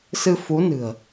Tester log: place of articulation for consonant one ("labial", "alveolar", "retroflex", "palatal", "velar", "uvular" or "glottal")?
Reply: alveolar